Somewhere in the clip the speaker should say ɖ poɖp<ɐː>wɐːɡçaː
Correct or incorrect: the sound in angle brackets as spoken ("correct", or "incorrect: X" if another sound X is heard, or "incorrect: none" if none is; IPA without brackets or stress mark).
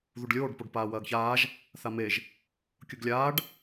incorrect: aː